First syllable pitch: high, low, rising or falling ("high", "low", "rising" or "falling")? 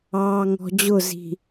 low